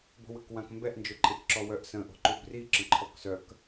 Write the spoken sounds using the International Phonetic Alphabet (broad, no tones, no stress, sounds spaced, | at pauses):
b o̤ w ə k w ã k m b ɛ ʔ n d͡ʒ ø ǃʼ e k ǁ ɔ w œ ʔ s ə̃ ʔ o̤ ǃ u b r i ǁ ə̃ ǃʰ ɔ k s œ k